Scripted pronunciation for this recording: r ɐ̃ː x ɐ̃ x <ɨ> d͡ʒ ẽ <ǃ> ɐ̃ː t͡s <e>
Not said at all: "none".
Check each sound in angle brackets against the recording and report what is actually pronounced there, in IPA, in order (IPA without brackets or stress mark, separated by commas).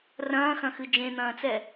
ɨ, n̪, ɛ